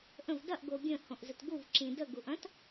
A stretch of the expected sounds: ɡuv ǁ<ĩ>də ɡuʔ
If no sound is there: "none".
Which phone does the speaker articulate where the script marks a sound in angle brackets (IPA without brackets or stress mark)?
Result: ĩ